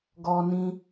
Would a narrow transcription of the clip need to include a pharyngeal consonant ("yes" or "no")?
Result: no